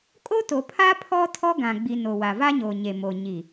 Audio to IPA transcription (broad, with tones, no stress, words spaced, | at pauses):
kʼoː˦to˨pʰaː˦ pʰɔ˦tʰɔ˦ ɡã˨ɡ͡bi˨ no˨ wa˨va˦ɲoː˨ ɲe˨mo˨ ɲi˨